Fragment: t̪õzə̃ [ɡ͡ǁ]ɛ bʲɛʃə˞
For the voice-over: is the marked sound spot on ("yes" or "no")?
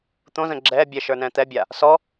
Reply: yes